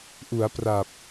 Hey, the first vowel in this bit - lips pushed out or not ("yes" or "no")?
yes